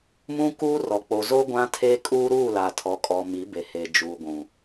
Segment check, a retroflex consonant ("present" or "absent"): absent